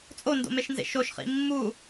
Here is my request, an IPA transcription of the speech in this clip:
t͡sʼ o n d o̰ m e ʃ n z ḛ ʃ o ʃ χ ḭ mː u

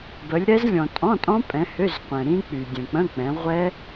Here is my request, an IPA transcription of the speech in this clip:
b ə˨˦ lʲ ɾ ɛ˦˥ z lʲ ɔ̃˨ tʼ ɔ̃˧˥˧ tʼ ɔ̃˦˥ pʼ ɛ̃˨˦ h ø˧˥˧ z qʷ ɛ̃˨ ɾ ĩ˦˥ k͡p y˨ dʲ ə̃˨ k͡p ə̃˧˥˧ k͡p ɛ̃˨˦ ʁʷ ɛ˦˥

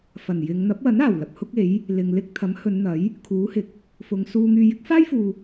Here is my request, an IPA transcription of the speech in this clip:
f ɐ˨˩ n j ɪ˨˧ ŋ n̪ ɐ˨˥ p̚ w ɐ˨˥ n aː˨˩ w l ɐ˨ p̚ h ʊ˥ k̚ e˨˥ j | l ɪ˨ ŋ l ɪ˥ k̚ t̪ʰ ɐ˨˥ m h ɵ˨˧ n n̪ ɐ˨˥ j | kʰ uː˨˥ h ɪ˨˥ k̚ | f ʊ˨˧ ŋ s uː˧ ŋ yː˧ j ɪ˨˥ k̚ f aː˥ j f uː˨

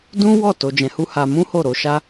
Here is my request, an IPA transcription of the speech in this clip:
d ũ˦ w ɔ˦˨ t o˧ d͡ʒ ɛ̃˧ h u˦ h a˧ m ũ˦ h o˦˨ ɾ o˨˦ ʃ a˦

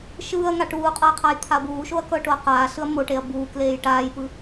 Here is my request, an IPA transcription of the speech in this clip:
ʃ ɯː ɐ̯ ŋ a ʈ uː qʼ ɤ j qʰ a j t̪ʰ a ɐ̯ b uː ʃ o ɐ̯ k ɤ ʈ o ɐ̯ q aː ɬ ɯ ɐ̯ m o ʈ e ɐ̯ b uː k l eː j ʈ aː j p ɯ

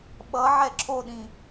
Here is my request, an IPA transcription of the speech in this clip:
ɓ ʌ ʕ ɛ ǁʰ o ɗ ĩ

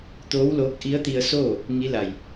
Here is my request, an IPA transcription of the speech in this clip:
t̪ oː˧˥ w l oː˧˥ k̚ ʔ i˧˥ ə̯ t̪ i˧ ə̯ s oː˥˨ | ŋ i˧˥ l a˧˩ j

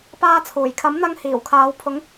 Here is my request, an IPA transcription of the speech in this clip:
p aː˧ t͡sʰ uː˨˩ j kʰ ɐ˨˥ m n̪ ɐ˧ ŋ h iː˨˩ w kʰ aː˨˧ w pʰ ʊ˨˧ ŋ

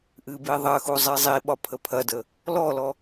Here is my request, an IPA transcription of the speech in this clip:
ʔ ɨ b i ðˤ ɐ x u zˤ i zˤ i ɓ ɒ pʰ ə pʰ ɐ d ə | l ɔ l ɔ

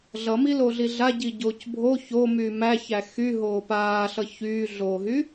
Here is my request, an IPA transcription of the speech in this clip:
ɮ ʌ m i l o ɮ i ɮ a ɟ i ɟ oː c bʱ o ç o m yː m æ ç æ x y ɦ oː p aː ɬ ʌ ç yː ɮ oː ɦ y

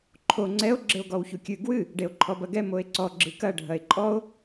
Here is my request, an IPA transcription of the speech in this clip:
ǃʰ o ŋ͡ǀ ɛ o̯ ɡ͡ǁ ɘ o̯ ɡ ɔ w ç u kʲ ɨ ɡ w ɨ | ɖ e o̯ ǃʰ ɔ b ɐ ɡ ɛ m o e̯ ǀ ɔ ɡ͡ǁ ɨ k ɐ ɖʱ ɐ e̯ ǃʼ ɔ o̯

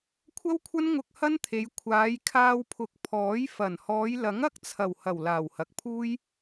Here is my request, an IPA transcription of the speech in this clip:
kʷʰ ɐ˥ w kʷʰ ɐ˥ n ŋ ʊ˧ k̚ h ɐ˥ n t̪ʰ e˨˧ j kʷʰ aː˨˧ j kʰ aː˧ w pʰ ʊ˨˥ k̚ pʰ ɔː˨˥ j f ɐ˨˩ n h ɔː˨˧ j l ɐ˨˥ ŋ ɐ˥ k̚ t͡sʰ ɐ˨˩ w h ɐ˨˩ w l aː˨˩ w h ɐ˨ k̚ pʰ uː˥ j

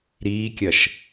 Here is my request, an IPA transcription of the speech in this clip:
ɾ iː kʲ ɐ ʃ

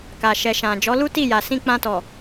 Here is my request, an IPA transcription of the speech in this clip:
k a˨ ʃ ɛ˨ ʃ ã˨ d͡ʒ ɔ˨˦ l u˦ t i˦˨ j a˨ s ĩ˧ k͡p ã˧ t ɔ˨

